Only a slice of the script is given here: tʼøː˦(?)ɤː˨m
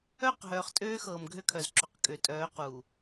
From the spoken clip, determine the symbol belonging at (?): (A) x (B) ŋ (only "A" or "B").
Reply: A